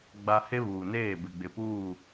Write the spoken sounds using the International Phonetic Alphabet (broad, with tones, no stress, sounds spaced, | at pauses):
ɡ͡b a˨ h e˦ β uː˨ n eː˦˨ b ɪ˨ ɡ͡b ɪ˨ p uː˦˨